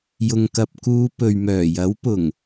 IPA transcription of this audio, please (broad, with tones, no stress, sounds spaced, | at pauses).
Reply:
j ʊ˨ ŋ k ɐ˨ p̚ k uː˨˧ p ɵ˨ ɥ m œː˨˩ j ɐ˨˥ w p ʊ˨˩ ŋ